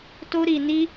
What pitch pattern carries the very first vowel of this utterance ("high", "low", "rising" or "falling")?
high